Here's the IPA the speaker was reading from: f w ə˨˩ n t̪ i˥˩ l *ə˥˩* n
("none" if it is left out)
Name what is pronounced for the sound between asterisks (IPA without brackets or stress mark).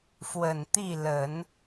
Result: ə˨˩˦